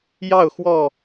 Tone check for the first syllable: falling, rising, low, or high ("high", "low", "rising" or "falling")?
falling